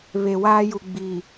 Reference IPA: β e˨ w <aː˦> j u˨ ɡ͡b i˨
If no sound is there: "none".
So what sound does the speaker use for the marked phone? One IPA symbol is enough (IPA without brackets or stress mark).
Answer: aː˦